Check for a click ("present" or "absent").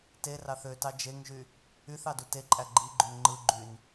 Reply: present